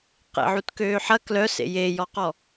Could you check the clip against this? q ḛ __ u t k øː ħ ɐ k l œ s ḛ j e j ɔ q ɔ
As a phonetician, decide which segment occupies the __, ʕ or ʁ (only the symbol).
ʕ